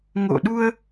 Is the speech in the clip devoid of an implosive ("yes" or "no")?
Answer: no